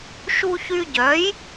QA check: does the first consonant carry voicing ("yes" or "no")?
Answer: no